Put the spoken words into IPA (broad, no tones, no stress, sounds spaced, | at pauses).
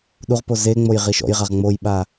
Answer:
ɗ u ʁ p o z e ŋ͡m o j ʁ i ʃ ɔ̰ j ʁ a ʁ ŋ͡m o j ɓ a